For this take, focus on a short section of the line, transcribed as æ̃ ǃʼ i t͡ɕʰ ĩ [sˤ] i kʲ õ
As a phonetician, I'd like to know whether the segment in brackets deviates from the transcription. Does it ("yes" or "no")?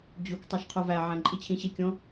yes